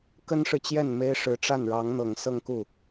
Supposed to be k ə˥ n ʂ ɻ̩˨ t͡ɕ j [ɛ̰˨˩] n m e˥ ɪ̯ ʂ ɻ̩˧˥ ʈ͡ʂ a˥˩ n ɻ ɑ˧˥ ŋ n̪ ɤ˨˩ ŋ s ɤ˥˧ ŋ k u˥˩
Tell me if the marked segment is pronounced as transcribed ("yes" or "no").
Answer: no